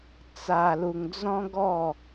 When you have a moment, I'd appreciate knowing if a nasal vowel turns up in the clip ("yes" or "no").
yes